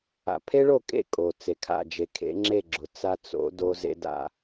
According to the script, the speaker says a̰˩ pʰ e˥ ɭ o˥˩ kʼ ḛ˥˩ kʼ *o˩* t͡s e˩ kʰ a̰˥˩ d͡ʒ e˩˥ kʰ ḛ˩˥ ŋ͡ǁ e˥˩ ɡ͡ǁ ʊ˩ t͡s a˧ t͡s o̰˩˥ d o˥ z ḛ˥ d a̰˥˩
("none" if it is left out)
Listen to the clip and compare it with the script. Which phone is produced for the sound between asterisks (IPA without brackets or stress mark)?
o˩